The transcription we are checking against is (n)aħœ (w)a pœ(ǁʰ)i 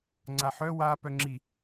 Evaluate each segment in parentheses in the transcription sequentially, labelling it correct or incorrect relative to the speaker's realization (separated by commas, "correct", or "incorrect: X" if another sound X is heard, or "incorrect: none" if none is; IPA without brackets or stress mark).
incorrect: ŋ͡ǀ, correct, incorrect: ŋ͡ǁ